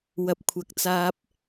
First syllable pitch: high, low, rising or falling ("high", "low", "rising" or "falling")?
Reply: rising